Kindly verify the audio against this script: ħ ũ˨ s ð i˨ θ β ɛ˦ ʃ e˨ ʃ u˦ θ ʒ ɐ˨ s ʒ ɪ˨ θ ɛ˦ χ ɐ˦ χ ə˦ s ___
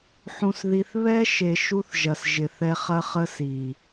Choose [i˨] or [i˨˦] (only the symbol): i˨